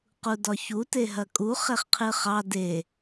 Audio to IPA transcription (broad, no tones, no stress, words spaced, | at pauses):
qudɒçu teɦɐkʼu χeχqʰɨχɑ de